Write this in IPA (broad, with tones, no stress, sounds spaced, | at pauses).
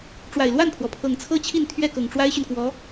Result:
ʈ͡ʂ w a˨˩ ɪ̯ l w a˥˩ n pʰ w ɔ˩ pʰ ɤ˨˩ ŋ t͡sʰ ɤ˥ t͡ɕʰ i˥˧ n t̪ʰ ɥ ɛ˥˩ k ɤ˨˩ ŋ ʈ͡ʂ w a˥ ɪ̯ ɕ y˨ n k w ɔ˧˥